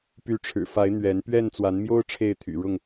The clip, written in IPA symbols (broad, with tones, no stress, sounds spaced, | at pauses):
p y˨˦ ʈ͡ʂʰ ɻ̩˨˩ f a˨˦ ɪ̯ n̪ ɥ ɛ˨˦ n p ɥ ɛ˥˨ n t͡s w a˨˦ n m j o˦ ʊ̯ ʈ͡ʂʰ e˥˨ ɪ̯ t̪ʰ y̰˨˩ ɻ ʊ˥˨ ŋ